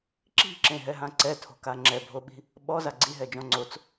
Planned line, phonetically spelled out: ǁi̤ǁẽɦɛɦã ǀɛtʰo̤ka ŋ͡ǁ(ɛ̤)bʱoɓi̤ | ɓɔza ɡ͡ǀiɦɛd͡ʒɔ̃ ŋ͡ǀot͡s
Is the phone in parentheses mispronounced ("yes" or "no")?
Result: yes